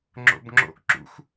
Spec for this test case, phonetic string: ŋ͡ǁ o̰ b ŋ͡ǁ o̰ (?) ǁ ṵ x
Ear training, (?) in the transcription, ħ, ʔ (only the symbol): ʔ